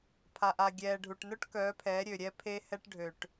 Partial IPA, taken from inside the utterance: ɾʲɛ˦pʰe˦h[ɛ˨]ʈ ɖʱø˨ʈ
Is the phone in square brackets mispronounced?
yes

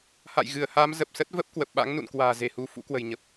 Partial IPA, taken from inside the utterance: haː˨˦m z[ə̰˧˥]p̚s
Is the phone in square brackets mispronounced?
yes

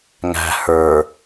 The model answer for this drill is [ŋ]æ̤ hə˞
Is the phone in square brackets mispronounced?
no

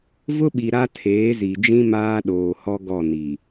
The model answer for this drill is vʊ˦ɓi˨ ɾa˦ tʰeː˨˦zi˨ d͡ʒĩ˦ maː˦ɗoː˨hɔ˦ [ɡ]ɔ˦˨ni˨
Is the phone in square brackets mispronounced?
no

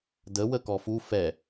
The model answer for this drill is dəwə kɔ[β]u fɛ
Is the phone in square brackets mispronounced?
yes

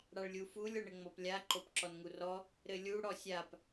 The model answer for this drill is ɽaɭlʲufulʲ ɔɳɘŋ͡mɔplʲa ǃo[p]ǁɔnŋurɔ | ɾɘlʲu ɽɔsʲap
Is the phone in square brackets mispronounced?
no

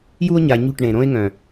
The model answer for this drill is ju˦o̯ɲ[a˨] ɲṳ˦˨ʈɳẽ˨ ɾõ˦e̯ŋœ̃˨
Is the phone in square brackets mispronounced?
no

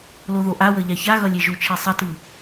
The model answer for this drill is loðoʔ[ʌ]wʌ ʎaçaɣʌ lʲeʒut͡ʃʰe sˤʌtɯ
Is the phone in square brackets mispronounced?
yes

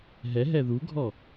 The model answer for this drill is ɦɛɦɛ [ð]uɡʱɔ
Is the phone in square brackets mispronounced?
no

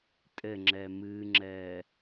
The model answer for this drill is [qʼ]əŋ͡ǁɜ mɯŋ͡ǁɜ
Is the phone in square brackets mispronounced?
yes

